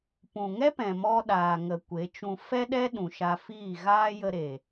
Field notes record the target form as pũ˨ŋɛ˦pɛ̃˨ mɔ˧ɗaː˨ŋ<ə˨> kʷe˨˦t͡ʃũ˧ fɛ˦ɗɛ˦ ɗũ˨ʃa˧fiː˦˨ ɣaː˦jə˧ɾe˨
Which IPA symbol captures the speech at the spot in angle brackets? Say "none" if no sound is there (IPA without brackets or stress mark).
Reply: ə˨